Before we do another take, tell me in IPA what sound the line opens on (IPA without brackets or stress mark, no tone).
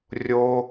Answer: rʲ